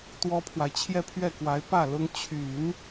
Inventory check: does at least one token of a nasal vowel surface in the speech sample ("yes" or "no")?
no